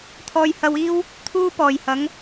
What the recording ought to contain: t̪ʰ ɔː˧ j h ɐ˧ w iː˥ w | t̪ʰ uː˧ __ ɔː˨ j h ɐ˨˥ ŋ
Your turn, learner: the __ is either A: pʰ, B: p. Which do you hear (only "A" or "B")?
B